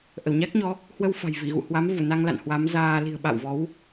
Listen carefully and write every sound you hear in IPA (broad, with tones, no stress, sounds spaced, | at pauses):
ʔ ə˧˩ w ɲ a˦˥ k̚ ɲ ɔ˨˦ | h w ə˧ w f a̤˨˩ j v i˧˩ ɣ ṵ˧˨ h w a˨˦ m v u˧˩ n a˧ ŋ l a̰˧˨ n h w a˨˦ m z aː˧ l i̤˨˩ ə̯ ɓ a̰˧˨ w v ɔ˨˦ w